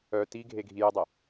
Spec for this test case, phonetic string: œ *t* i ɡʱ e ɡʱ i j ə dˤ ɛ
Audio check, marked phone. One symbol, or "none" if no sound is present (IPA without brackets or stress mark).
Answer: t